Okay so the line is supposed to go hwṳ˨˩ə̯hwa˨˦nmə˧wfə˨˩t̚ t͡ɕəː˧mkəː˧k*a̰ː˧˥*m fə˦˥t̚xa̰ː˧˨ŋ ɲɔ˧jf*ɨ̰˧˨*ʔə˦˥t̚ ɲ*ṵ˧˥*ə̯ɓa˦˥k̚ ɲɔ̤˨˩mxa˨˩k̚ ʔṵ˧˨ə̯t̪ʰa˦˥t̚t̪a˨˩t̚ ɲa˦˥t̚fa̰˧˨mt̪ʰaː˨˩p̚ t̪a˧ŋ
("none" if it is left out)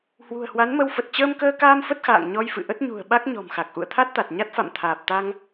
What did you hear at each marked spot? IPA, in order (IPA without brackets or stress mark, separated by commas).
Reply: aː˧, ɨ̰˧˨, ṳ˨˩